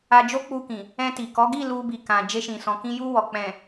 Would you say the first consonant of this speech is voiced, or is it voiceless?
voiced